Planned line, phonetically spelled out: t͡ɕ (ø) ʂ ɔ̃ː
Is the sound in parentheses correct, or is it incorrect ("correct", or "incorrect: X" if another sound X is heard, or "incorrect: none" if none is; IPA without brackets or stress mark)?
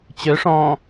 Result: correct